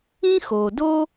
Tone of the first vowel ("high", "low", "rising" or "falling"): high